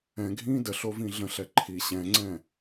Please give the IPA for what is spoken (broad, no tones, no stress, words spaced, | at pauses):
ɛ̃ɡʱĩː dəɬovĩ ɮə̃ɬɛ ǃʰi ɕɛ̃ŋ͡ǀɛ̃